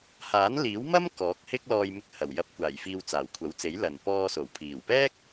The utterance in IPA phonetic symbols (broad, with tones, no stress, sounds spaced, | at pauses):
h aː˨˥ n l iː˨˥ w m ɐ˥ m k ɔː˨˥ k̚ h ɪ˥ k̚ l ɔː˧ j m ɪ˧ k̚ h ɐ˨˩ w j ɐ˨ p̚ kʷ aː˨˩ j f iː˨ w t͡s aː˨˩ w kʷʰ ɐ˨˥ w t͡s e˨˥ j l ɐ˨˩ n p ɔː˧ s o˨˩ w pʰ iː˨˩ w p ɛː˥ k̚